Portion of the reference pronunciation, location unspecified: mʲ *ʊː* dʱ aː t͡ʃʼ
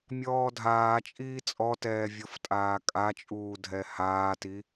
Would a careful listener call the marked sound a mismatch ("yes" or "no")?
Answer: yes